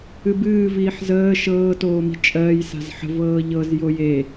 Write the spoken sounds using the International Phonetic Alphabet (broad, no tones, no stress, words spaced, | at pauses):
ɨbɨː viːħzəː ʃɤː toːmi̤ t͡ʃʼɜːj sa̤zħə̤vɤː ʎɤz joje